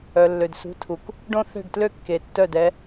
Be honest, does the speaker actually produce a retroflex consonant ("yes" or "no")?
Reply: yes